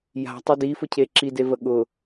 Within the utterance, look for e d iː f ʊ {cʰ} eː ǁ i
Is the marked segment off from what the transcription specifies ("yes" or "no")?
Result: no